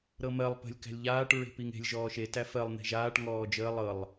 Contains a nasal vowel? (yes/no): no